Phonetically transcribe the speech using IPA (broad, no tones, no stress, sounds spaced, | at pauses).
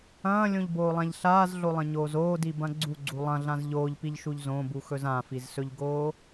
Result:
ɐ̃ː lʲ õ ʎ b oː lˠ ã ʎ ɬ aː z ɮ o lˠ ɐ̃ ɲ oː z oː d i b ɐ̃ ɡ͡ǀ u ɡ͡ǀ u lˠ ɐ̃ ɮ ã z ʎ oː ʎ p i ʎ ʃ u ʎ z õ b u x ɵ z ã f i z s ɵ ʎ ɡ oː